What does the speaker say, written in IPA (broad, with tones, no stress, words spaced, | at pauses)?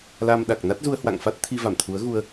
la˧mɗa˨˩k̚ na˦˥t̚zu˧ə̯hwa̰˧˨ŋfa˦˥t̚ t̪ʰi˧ va˧˩mt̪ʰu˨˦ə̯ ɣu˧ə̯